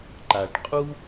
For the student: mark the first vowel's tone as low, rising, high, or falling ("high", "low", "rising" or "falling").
low